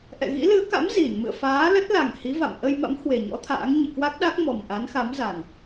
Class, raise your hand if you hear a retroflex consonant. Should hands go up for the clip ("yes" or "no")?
no